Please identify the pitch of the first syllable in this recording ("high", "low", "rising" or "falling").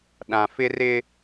low